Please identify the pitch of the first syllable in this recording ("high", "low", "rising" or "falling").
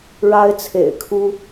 high